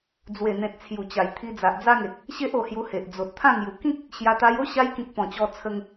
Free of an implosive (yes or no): yes